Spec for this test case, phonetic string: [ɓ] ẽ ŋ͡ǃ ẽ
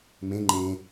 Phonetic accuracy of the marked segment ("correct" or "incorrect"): incorrect